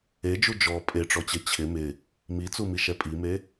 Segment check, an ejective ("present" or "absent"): present